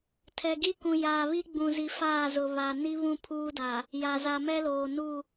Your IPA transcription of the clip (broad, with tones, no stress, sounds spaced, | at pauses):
tʰ ɛ˨ ɡ i˦ k ũ˨ j aː˨ β i˦ ɡ͡b ũ˨ z i˨ f aː˦˨ z ʊ˨ β a˨ n i˦ β ũ˦˨ pʰ uː˦ d aː˨ | j a˨ z a˨ m ɛ˦ l oː˨ n uː˦˨